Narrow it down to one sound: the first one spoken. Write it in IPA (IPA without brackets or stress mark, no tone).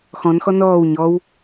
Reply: x